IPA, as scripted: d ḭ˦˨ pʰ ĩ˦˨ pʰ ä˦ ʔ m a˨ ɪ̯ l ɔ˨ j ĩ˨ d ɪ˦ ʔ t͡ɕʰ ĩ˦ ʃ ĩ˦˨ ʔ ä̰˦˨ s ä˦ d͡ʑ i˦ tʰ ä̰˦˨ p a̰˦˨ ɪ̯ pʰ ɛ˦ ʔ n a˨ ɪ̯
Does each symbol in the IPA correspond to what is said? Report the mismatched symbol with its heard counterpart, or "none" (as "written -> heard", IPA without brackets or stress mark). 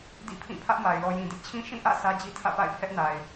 none